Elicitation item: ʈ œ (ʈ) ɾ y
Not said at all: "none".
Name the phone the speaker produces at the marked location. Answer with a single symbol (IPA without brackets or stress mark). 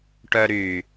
none